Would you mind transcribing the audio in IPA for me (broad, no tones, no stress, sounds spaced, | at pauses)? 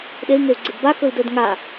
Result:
ɗ e i̯ ŋ e u̯ ɡ͡ǀ ɪ d b a k ɵ i̯ d ɵ d ŋ a